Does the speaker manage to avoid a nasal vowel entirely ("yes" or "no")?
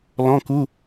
no